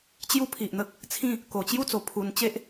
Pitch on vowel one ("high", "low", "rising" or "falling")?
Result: high